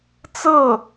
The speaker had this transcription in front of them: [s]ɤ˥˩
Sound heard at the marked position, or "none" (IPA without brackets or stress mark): t͡s